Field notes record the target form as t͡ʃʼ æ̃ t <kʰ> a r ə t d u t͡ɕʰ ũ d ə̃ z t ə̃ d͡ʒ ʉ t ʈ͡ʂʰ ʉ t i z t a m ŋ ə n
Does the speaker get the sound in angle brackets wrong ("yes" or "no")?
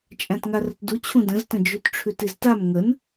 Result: yes